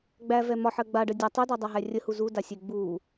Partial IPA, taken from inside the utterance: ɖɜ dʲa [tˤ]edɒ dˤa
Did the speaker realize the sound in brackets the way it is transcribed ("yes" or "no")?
yes